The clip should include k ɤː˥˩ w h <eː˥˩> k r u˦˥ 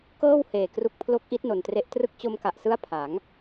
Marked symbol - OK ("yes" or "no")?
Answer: no